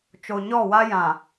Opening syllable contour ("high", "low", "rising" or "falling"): low